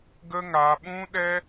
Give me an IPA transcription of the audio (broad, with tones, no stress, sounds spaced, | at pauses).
ɡ ə˦ ŋ a˧ ɓ ũ˦ ɗ ɛ˦